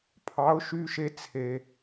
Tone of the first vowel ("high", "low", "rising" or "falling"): rising